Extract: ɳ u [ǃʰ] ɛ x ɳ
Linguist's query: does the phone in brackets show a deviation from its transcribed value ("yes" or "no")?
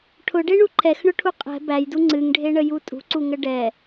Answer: no